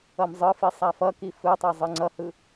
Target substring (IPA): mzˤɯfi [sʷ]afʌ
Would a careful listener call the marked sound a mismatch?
yes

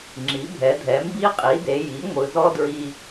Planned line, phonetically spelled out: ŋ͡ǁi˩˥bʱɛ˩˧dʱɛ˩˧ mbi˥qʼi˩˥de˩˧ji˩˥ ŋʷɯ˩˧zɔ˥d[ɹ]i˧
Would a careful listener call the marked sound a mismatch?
no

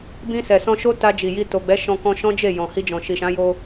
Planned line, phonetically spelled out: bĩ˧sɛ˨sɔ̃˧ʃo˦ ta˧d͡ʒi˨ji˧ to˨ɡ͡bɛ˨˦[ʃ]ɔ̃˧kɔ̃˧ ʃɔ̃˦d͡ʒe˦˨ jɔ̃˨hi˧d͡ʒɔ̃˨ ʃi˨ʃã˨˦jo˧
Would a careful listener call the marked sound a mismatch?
no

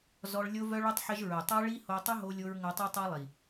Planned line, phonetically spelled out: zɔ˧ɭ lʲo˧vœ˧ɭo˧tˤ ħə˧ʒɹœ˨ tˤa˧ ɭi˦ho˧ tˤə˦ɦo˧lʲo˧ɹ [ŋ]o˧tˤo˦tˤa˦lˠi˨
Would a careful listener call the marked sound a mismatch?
no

